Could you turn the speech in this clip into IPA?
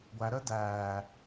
ɡʷæɾəː dæː

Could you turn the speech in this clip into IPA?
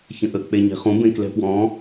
çə̃ʔə k͡peɲe̤χũ bẽklɛ̤pwɔ̃

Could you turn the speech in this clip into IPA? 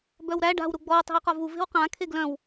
bœwɾæ ɖa̤w ɾuɡ͡bɔw tˤe̤wqɒvu ve̤wqã kʰeɡlœ̃w

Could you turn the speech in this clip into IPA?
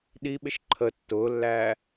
ɗiɓɪʃ ǃʰə tːʊːlːæː

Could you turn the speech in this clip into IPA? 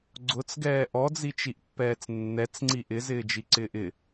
ɡ͡ǀʊt͡sɡɛː ʔɔd͡zit͡ʃiʔpːɛːt͡s nːɛt͡sŋ͡ǀi ʔɪzɪːd͡ʒiǀɪːʔ ɪ

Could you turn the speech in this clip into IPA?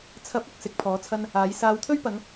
t͡sʰɐ˨˥p̚ʊ˨k̚ sɪ˨˥k̚pʰɔː˨˥t͡sʰɐ˥n | aː˨˥j saː˨˧wt̪ʰɵ˥ɥpɐ˨˧ŋ

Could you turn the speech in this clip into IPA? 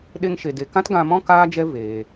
ɗe˧ŋʃe˨de˨kã˦t ɡã˧mɔ̃˦ kaː˦d͡ʒɛ˦ veː˧

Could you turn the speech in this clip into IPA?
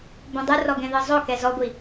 bõdˤɯrɔ ɡɛ̃ðɯzˤokɛ zɔɡʷi

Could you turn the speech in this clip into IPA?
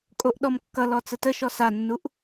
kʼoʔɗɔmkːʌlɔ t͡sətəʃɔ sanːuʔ

